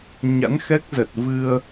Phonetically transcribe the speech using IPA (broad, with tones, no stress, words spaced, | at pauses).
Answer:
ɲa̰˧˥nxɛ˦˥k̚zə˨˩t̚vɨ˧ə̯